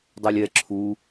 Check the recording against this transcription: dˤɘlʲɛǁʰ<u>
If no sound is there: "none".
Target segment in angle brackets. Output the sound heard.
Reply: u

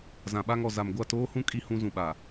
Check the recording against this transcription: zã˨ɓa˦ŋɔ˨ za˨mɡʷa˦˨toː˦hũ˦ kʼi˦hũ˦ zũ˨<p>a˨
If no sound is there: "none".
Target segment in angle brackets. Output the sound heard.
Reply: ɓ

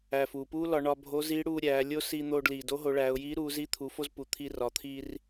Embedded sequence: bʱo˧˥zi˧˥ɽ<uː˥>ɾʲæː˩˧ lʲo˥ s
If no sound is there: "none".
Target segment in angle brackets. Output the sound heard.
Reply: uː˧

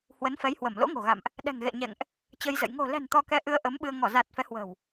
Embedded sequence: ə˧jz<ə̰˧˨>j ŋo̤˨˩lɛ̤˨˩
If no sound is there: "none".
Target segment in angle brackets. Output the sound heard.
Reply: ə̰˧˨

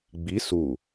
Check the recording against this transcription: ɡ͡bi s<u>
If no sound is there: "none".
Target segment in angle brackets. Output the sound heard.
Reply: u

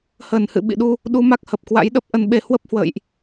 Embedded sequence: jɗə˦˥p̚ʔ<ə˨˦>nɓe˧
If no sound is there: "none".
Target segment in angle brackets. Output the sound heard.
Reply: ə˧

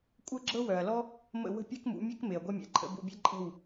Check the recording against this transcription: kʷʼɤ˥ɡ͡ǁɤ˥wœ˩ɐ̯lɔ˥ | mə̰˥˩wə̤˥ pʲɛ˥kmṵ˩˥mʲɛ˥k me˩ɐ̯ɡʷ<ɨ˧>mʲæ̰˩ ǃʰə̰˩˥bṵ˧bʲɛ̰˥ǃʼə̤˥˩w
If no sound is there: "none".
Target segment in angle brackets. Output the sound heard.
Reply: ɛ˧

